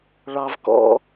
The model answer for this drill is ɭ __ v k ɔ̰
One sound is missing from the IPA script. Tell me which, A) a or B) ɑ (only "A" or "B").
B